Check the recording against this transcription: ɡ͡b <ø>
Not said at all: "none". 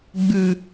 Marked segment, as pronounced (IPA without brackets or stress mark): ʉ